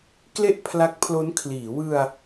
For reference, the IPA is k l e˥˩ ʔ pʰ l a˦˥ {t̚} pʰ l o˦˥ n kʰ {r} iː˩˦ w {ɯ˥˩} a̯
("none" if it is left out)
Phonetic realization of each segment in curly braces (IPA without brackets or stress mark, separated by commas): k̚, l, ɯ˧